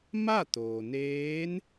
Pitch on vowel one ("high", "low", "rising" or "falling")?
falling